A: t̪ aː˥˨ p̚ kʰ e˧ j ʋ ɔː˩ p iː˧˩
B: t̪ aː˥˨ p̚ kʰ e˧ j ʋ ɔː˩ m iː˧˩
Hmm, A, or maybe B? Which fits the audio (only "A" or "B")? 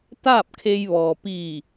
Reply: A